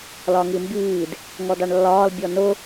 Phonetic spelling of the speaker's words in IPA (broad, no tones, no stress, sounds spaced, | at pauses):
l ɒ ŋ i m b iː d | ŋ ɔ d ɑ ɳ lː ɒː l bʲ ɔ n ʊ